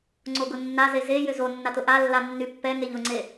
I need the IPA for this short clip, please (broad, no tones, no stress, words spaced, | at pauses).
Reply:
ŋ͡ǀoɡʊnːaze ze jʏzonːat ʊʔalːa nːypːɛŋeʎ ʊŋ͡ǀe